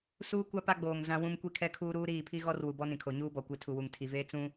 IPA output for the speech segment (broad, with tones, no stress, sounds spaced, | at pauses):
s uː˦ kʷ a˦ p a˦ ɡ͡b oː˨ ŋ z ã˦ w ũ˦ m kʷ i˦ kʰ ɛ˦ kʰ uː˦ ɾ uː˦ ɾ iː˦˨ pʰ i˦ ɣ ɔ˦ r w u˨ b ɔ˦ n ĩ˨ kʰ o˨ ɲ uː˦ b ɔ˨ kʷ i˨ tʰ u˨ w u˨ ŋ tʰ i˨ v eː˦ t͡s ũ˦